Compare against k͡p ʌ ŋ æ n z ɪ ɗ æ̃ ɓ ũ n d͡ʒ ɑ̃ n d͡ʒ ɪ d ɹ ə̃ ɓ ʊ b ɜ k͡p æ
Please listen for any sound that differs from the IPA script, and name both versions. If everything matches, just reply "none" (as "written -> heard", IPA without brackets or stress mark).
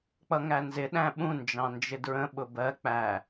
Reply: none